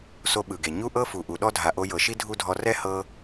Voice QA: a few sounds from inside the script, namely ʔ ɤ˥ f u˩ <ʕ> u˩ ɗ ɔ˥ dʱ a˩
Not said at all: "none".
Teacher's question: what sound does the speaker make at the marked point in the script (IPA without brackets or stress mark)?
ʔ